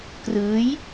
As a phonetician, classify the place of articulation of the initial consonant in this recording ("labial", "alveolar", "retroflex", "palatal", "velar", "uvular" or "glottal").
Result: velar